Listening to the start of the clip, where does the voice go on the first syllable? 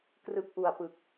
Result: low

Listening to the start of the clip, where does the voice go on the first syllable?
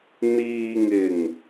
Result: low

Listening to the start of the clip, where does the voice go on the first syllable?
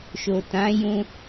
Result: low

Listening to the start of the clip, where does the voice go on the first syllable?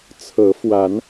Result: rising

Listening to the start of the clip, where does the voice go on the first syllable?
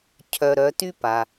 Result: low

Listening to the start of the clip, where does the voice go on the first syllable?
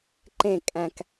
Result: falling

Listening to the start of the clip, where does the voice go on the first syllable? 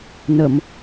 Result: low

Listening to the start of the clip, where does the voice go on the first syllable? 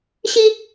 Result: high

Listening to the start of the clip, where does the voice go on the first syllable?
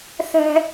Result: high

